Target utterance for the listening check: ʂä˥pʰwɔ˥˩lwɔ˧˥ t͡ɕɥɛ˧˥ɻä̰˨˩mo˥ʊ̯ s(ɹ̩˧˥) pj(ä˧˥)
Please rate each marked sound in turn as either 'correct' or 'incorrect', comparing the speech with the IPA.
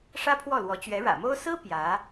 incorrect: ɹ̩˥, correct

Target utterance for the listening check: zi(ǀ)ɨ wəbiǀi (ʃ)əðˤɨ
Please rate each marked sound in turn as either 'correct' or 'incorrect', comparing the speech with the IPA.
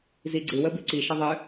incorrect: ɡ͡ǀ, correct

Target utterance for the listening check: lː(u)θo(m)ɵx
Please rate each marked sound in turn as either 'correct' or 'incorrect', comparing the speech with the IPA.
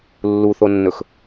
correct, incorrect: nː

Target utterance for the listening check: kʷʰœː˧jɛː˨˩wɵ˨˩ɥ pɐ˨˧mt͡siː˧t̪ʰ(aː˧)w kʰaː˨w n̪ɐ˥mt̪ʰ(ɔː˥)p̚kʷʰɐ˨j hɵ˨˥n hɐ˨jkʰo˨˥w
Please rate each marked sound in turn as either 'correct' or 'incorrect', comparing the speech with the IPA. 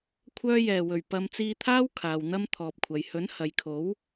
incorrect: aː˥, incorrect: ɔː˨

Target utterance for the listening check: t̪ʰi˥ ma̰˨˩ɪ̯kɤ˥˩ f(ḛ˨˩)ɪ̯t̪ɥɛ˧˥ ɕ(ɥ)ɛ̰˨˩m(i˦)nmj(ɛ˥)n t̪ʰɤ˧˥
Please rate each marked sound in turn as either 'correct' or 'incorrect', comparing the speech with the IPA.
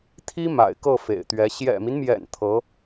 correct, incorrect: j, correct, incorrect: ɛ̰˨˩

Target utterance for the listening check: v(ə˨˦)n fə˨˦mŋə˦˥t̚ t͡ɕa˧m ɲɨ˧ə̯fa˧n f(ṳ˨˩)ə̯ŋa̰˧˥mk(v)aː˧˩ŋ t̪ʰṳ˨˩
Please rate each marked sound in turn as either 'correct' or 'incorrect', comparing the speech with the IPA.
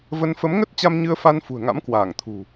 incorrect: ə˧, correct, incorrect: w

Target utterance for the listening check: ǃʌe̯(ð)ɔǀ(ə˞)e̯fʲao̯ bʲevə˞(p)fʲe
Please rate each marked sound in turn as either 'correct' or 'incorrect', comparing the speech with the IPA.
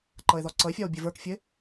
correct, incorrect: ʌ, incorrect: k

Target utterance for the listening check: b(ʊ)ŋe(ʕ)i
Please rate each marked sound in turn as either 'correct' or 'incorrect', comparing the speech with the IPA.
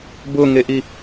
correct, incorrect: ʔ

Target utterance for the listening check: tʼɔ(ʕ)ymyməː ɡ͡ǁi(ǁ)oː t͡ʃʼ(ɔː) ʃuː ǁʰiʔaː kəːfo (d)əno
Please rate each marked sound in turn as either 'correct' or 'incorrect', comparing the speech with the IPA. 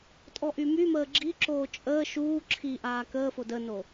incorrect: ʔ, correct, incorrect: əː, correct

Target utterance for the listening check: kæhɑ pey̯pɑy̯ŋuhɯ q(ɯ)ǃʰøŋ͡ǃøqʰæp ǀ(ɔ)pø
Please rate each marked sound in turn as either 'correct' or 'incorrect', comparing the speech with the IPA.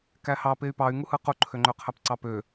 incorrect: u, incorrect: ɑ

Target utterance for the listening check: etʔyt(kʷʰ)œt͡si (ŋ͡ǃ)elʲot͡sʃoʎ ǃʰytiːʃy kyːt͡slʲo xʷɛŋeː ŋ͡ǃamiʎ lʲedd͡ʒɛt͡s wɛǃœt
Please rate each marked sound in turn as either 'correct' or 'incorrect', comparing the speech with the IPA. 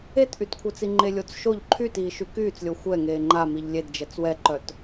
correct, correct

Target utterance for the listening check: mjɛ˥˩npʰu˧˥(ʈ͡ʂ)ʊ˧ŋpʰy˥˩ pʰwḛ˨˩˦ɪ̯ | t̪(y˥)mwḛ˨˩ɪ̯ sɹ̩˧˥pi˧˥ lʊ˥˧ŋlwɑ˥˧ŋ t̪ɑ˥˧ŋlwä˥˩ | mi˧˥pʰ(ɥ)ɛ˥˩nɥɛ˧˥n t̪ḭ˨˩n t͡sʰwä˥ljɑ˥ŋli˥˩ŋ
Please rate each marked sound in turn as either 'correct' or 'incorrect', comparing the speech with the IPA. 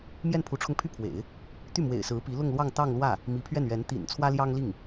incorrect: ʈ͡ʂʰ, incorrect: y˥˩, correct

